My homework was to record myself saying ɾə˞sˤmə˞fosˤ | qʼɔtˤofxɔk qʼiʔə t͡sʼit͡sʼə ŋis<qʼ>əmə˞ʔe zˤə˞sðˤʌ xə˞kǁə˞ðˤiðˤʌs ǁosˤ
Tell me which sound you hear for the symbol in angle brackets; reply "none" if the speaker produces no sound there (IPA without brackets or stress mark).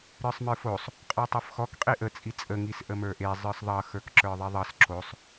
ʔ